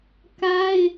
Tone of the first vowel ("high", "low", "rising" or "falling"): high